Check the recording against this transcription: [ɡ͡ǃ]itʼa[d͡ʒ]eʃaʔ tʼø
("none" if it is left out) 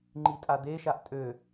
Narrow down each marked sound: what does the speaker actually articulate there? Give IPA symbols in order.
ŋ͡ǃ, d̪

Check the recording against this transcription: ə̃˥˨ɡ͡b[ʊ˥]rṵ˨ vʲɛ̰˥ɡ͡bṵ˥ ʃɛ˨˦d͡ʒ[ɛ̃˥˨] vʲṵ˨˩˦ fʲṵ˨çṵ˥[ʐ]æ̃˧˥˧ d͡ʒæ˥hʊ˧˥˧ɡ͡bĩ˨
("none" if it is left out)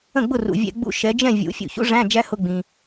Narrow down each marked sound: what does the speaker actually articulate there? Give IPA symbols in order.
ʊ˥˨, ɛ̃˥˨, ʐ

